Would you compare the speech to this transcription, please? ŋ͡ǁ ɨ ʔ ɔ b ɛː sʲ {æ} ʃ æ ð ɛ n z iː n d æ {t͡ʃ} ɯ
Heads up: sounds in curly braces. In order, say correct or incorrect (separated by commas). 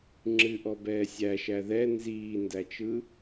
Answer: correct, correct